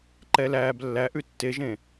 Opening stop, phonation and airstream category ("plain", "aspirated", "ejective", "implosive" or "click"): click